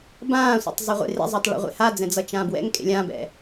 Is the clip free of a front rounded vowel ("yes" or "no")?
yes